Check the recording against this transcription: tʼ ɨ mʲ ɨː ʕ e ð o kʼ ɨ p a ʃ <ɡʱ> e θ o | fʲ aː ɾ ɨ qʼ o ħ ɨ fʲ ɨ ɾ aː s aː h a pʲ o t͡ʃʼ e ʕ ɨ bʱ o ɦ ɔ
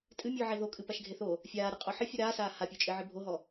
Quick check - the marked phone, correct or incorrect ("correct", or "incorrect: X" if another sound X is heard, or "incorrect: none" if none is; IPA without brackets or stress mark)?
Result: correct